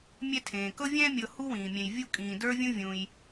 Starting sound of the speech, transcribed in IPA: mʲ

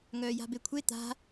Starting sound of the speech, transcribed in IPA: ŋ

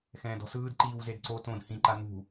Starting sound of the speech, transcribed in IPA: x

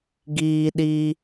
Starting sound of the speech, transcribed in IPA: ɡ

